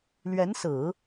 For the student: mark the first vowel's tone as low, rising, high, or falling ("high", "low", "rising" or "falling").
rising